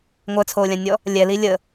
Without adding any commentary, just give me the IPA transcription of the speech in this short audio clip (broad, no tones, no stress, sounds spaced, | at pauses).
ŋʷ œ t͡sʰ oː lʲ ã nʲ ɔ | lʲ ɛ l i lʲ ə